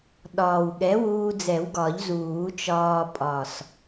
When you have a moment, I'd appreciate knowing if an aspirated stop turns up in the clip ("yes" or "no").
no